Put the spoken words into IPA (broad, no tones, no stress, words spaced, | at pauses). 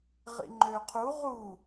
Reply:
ʁḭŋ͡ǃøqʰu ʁu